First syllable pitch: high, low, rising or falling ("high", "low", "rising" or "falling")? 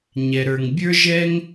low